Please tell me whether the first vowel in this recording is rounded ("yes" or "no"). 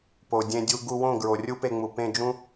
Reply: yes